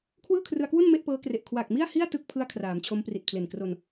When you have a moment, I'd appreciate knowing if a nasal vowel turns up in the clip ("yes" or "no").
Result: no